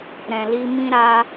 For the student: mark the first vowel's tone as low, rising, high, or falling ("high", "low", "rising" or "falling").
low